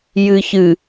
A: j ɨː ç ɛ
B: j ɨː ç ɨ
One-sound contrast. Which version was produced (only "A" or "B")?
B